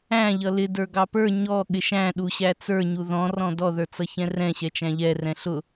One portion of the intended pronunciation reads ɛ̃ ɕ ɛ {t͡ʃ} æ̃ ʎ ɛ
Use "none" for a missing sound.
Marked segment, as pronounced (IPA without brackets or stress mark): t͡ʃ